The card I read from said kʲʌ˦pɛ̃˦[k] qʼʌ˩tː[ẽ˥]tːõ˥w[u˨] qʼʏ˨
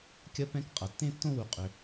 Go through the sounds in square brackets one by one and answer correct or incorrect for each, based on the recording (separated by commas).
correct, correct, correct